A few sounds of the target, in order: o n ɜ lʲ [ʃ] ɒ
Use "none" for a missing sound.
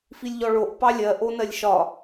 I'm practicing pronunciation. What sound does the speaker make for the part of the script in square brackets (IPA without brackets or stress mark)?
ʃ